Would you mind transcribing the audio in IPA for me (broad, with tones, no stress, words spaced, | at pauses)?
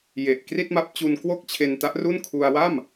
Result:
je˨˩ʔkri˥˩t̚ma˦˥p̚ t͡ɕu˧nkwo˥˩k̚t͡ɕʰe˧n ta˦˥ʔru˥˩nkʰu˧a̯ wa˥˩m